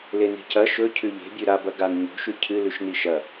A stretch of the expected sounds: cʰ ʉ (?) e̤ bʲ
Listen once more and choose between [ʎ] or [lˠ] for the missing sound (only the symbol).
ʎ